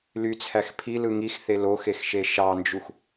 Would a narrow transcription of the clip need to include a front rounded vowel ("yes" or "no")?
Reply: yes